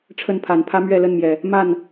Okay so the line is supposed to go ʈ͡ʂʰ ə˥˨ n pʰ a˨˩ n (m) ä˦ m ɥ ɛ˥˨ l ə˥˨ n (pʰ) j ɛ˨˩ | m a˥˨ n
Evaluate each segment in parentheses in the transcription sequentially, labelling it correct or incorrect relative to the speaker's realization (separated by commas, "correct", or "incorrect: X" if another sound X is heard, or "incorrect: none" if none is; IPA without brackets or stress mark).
incorrect: pʰ, incorrect: m